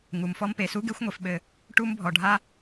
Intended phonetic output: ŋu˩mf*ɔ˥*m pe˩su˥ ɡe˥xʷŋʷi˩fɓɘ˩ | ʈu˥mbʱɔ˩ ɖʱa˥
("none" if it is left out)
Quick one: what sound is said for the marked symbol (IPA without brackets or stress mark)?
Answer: ɔ˥